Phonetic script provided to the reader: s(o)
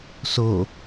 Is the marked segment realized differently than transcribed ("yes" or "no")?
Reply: no